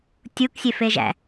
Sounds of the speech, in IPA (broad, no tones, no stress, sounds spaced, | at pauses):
tʲ u k sʲ e f e ʒ æ̰